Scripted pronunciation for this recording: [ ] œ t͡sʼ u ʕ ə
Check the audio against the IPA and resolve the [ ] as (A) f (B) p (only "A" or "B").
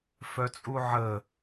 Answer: A